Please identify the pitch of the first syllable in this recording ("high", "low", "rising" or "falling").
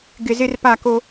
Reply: low